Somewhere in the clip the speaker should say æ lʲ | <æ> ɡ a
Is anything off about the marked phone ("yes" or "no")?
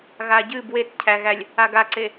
yes